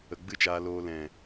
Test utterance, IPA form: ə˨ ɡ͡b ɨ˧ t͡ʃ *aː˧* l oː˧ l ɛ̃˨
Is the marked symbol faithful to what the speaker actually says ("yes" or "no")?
yes